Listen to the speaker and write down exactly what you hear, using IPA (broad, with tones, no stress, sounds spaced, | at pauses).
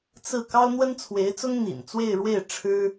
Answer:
t͡s ɹ̩˥˩ k ɑ˥ ʊ̯ n̪ w ə˥ n t͡sʰ w e˧˥ ɪ̯ t͡s ʊ˥ ŋ n̪ ḭ˨˩ n t͡s w e˥˧ ɪ̯ ɻ w e˥˩ ɪ̯ ʈ͡ʂʰ ɻ̩˥